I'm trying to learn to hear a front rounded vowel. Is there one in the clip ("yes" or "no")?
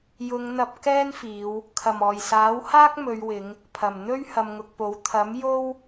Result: no